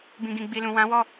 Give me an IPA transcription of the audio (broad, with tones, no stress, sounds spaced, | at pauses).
b ĩ˨ ɡ ĩ˨ ɡ͡b i˨ l ũ˨ w ã˨˦ w ɔ˦˨